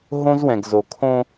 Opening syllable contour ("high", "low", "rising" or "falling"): high